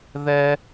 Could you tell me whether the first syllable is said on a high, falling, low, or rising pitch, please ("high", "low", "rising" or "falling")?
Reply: high